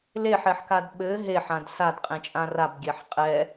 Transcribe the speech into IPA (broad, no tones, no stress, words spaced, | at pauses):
leħɛħkad ɓɘ ɦeħãd sadqʼẽt͡ʃʼã rabɡʲɛħ qʼɛ